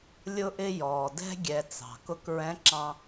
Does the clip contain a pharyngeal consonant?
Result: no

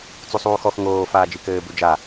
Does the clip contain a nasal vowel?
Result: no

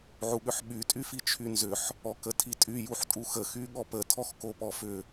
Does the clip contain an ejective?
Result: yes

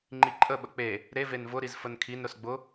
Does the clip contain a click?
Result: yes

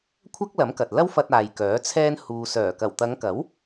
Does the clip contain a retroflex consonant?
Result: no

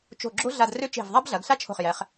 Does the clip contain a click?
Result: yes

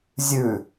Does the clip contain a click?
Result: no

